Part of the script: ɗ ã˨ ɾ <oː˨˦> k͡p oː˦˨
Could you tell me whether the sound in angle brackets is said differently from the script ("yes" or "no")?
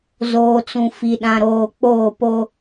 yes